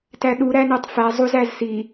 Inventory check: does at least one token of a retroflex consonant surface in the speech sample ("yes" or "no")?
no